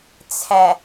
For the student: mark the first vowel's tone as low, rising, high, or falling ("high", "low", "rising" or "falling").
low